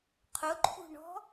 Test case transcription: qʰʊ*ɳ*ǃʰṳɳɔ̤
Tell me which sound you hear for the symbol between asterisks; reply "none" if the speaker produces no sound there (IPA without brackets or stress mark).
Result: none